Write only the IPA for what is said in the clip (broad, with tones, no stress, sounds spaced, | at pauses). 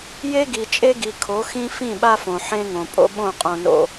j e˦ ɡ i˨ t͡ʃʼ e˦ ɡ i˨ kʰ o˨˦ x ĩ˦ f ĩ˦˨ ɓ a˦ f õ˨ ħ ẽ˦ ŋ õ˨ pʼ o̰˦ ɓ õ˦˨ qʼ õ˦ n o̰˦